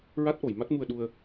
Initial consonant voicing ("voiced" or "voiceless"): voiced